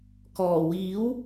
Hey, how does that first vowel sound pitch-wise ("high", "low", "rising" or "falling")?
low